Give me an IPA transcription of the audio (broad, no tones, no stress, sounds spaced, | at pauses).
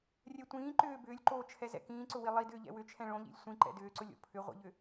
rʲ ɛ tʷ ĩː ǃ ʏː b ʏː lʲ ǃ oː t͡ʃʰ ɛ z ɛ̰ k ĩː ǀ ʊ w i lˠ i d ʏː ʎ ɛ̰ w ʏ t͡ʃʰ ɛ̃ ɭ õ ʎ ḭ lʲ sʷ ĩ ǃ ɛ̰ d ʏː ǀ ʊ lʲ o̰ pʰ ʏ ʁʷ ḭ ʎ ʏ